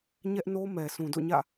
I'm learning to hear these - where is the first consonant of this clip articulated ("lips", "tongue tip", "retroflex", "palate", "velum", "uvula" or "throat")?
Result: palate